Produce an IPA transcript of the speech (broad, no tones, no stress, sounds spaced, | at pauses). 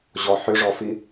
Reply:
ʑ ɔ ħ ʏ ʐ ɔ f i